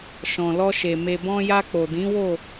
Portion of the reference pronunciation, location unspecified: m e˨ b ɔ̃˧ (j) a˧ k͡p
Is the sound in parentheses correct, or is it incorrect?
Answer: correct